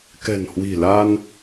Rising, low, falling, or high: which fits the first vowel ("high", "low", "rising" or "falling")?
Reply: low